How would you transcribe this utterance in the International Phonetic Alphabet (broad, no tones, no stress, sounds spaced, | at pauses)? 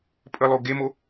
pʼ ə lˠ o ɡ e m o